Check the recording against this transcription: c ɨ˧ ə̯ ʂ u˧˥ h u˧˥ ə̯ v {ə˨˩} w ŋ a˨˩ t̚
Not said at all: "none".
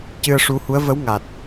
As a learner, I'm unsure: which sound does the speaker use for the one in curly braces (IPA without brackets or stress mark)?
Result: ə˧˥